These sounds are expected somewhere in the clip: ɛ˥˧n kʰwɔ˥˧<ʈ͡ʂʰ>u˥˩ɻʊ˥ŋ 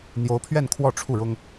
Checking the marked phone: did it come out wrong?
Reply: no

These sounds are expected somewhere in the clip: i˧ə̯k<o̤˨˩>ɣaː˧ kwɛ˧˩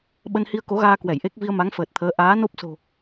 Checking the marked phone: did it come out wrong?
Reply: yes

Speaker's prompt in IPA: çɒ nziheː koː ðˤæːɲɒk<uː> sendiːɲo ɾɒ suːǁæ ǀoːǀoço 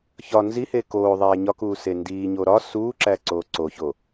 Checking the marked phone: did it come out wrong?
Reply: no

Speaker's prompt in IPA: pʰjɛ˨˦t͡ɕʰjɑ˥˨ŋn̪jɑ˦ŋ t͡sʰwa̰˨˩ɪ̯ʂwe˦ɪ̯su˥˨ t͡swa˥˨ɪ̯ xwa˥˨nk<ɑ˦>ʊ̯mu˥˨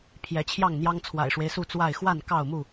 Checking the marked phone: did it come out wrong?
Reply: yes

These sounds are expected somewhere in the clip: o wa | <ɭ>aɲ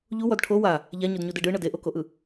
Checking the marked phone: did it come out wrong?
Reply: yes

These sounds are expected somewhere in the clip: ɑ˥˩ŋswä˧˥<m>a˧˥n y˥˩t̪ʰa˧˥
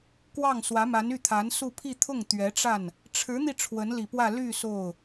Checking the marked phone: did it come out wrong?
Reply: no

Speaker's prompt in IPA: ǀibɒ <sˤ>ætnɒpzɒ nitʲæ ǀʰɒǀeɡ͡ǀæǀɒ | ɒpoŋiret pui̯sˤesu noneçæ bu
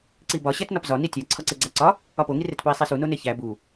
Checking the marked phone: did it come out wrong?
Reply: yes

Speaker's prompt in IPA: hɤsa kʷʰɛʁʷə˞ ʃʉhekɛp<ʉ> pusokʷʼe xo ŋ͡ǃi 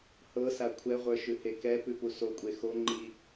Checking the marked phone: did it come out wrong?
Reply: no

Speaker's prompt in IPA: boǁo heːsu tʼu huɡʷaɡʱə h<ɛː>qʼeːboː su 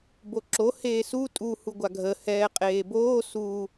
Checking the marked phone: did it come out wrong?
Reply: no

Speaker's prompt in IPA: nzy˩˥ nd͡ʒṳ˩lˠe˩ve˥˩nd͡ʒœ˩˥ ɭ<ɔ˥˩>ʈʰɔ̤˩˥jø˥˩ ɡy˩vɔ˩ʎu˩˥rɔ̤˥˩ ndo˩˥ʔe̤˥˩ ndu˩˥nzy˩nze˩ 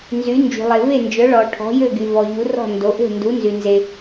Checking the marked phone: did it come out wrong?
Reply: yes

